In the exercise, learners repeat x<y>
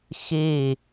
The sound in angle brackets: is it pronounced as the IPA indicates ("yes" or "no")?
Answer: no